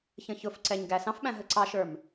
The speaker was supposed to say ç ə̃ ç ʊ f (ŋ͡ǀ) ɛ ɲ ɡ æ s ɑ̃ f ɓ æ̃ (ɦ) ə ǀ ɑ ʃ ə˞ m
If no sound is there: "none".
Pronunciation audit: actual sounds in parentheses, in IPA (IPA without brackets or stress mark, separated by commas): ǀ, ɦ